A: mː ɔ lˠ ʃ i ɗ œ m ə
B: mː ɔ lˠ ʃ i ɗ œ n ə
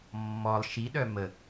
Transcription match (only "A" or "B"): A